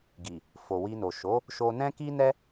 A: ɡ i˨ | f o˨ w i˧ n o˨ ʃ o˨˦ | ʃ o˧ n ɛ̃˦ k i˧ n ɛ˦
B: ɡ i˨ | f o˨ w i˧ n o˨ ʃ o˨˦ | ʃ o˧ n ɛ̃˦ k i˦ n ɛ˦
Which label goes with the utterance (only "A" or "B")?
B